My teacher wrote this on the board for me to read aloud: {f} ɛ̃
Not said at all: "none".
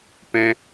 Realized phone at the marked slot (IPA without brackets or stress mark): p